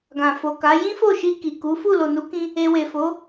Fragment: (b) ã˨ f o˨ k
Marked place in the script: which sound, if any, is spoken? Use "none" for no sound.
ɡ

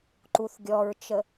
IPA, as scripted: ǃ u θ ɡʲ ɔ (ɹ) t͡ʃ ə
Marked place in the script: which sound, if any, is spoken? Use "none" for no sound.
ɹ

